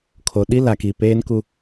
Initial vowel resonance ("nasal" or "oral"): oral